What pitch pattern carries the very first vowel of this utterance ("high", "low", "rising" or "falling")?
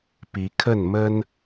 rising